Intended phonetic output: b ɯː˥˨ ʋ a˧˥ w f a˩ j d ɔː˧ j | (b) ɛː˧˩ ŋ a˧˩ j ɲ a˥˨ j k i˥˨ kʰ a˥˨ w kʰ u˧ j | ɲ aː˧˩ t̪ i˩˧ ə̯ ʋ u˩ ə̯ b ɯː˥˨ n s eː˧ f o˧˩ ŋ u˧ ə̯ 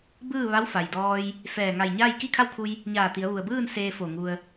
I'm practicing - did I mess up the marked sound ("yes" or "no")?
yes